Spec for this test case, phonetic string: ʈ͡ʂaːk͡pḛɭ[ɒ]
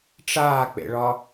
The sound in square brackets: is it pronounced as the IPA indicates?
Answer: yes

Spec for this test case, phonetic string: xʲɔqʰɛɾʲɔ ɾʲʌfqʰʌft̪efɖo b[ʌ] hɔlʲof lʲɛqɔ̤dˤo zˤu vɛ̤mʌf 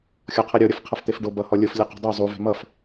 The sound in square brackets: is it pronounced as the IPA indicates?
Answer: yes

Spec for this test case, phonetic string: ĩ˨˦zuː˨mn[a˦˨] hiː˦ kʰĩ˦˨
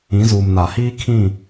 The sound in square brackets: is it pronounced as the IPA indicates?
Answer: no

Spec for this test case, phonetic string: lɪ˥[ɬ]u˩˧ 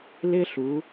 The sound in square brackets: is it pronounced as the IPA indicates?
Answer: yes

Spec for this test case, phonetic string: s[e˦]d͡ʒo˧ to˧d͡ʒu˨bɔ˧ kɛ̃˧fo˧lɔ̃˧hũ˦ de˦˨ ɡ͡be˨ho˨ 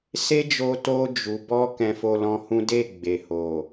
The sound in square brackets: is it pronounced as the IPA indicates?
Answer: yes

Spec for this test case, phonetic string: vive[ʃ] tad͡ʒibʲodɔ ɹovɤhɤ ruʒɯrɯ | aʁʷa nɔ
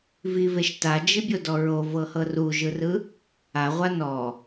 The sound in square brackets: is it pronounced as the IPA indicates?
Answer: yes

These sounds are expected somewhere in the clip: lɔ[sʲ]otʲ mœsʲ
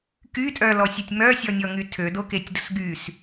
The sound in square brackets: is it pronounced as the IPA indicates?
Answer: yes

